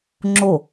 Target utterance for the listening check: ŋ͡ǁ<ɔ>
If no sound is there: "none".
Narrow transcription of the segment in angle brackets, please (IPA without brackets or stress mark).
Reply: o